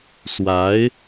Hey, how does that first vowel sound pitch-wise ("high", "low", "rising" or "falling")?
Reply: rising